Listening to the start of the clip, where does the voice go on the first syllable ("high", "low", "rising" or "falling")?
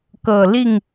low